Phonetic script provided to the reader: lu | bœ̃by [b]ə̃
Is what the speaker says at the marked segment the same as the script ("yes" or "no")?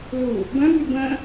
yes